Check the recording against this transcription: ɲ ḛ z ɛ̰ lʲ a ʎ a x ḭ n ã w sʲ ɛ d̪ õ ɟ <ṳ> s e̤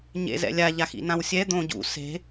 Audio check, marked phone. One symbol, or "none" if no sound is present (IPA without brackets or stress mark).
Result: ṵ